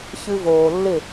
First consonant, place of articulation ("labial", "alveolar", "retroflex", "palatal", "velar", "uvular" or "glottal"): palatal